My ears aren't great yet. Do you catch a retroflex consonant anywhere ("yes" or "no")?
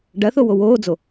yes